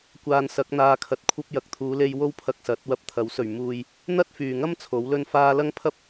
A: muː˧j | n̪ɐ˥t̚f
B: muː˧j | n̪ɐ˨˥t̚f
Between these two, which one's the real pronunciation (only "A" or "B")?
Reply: A